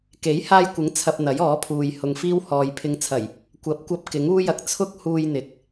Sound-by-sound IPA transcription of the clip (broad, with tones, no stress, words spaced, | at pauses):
ke˨˥jhaː˧jkʷɪ˨˥ŋ t͡sʰɐ˧p̚n̪ɐ˨˥jɔː˨˥pʰuː˨j hʊ˨ŋfiː˥whɔː˨j pʰɪ˨˧ŋt͡sʰɐ˨˩j | kʷɐ˨˥p̚kʷɐ˧p̚ kɪ˨˥ŋuː˥jɐ˧k̚ t͡sʰʊ˥k̚huː˧jn̪ɪ˨k̚